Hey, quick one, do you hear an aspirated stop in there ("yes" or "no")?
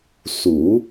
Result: no